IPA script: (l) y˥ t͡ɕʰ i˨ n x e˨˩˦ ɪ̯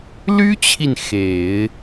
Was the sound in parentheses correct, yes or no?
yes